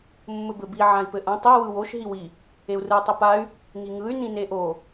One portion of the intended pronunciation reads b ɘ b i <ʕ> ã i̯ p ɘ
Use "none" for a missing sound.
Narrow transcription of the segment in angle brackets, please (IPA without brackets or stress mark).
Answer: ʕ